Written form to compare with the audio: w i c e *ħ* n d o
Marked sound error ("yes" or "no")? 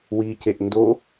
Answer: yes